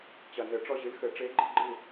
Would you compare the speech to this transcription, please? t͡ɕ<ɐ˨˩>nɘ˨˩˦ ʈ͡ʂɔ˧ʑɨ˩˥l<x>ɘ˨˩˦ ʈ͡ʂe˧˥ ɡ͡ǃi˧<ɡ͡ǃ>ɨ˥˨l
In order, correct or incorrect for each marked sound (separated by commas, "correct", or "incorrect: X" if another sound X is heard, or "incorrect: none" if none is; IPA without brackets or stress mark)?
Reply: correct, correct, correct